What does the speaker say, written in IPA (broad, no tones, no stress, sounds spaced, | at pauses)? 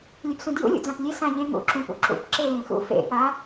lʲ ø p s ũ d j ṵ lʲ ṵ d͡z ã p lʲ e s ã ʎ ẽ ŋ ṵ ǁ ũ p ṵ ǁ ṵ p ǁ e l ẽ x ṵ f ḛ p a